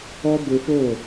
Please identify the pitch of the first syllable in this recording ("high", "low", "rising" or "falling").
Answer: high